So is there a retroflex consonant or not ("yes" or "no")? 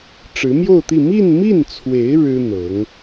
yes